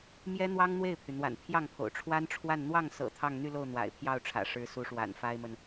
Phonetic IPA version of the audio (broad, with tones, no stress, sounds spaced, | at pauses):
m j ɛ˥ n̪ w ɑ˥ ŋ n̪ w e˥˩ ɪ̯ pʰ y˩ n̪ w a̰˨˩ n pʰ j ɑ˥˩ ŋ pʰ o̰˨˩ ʊ̯ ʈ͡ʂʰ w a˥ n ʈ͡ʂʰ w a˥˧ n n̪ w ɑ˥˩ ŋ s ɤ̰˨˩ t̪ʰ ɑ˥˧ ŋ n̪ y˥˧ l o˥˩ ʊ̯ n̪ w a̰˨˩ ɪ̯ pʰ j ɑ˥˩ ʊ̯ ʈ͡ʂʰ ä̰˨˩ ʂ ɻ̩˧˥ s u˧˥ ʂ w a̰˨˩ n f a˥ ɪ̯ m ə˨ n